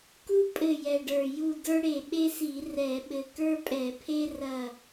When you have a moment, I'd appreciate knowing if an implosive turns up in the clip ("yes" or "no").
yes